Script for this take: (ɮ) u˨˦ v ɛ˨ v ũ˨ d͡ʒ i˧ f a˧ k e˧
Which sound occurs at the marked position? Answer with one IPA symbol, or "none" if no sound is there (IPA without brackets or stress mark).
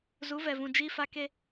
z